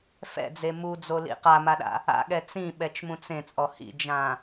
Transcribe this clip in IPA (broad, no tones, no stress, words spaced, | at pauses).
fɛ̰d͡ze mud͡zolḭ qamaɗa̰ | a̰ɠɛ t͡sĩɓɛt͡ʃmũt͡s ẽt͡sʼɔ hḭd͡ʒã